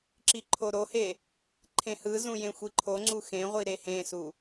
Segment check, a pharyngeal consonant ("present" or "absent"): absent